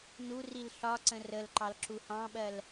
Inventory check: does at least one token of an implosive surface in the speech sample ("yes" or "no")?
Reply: yes